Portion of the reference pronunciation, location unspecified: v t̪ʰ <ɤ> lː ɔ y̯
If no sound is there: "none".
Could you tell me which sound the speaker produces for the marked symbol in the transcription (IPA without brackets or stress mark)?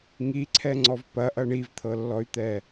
ɤ